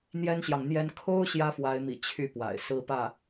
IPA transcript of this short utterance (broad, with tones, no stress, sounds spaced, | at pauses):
n̪ j ɛ˥ n ɕ j ɑ˨ ŋ n̪ j ɛ˥ n kʰ o˥ ʊ̯ ɕ j ä˥ f w a˧˥ ɪ̯ m ḭ˨˩ t͡ɕʰ y˥˩ p w a̰˨˩ ɪ̯ s ɹ̩˥ p ä˥˩